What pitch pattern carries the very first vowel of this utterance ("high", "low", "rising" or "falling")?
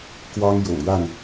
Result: high